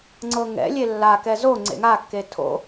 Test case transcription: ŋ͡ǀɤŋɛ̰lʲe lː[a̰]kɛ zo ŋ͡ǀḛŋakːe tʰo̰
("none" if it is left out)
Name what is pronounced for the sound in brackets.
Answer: a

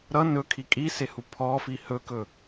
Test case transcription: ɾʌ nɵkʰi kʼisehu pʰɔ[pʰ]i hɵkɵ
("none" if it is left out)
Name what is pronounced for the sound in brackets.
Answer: f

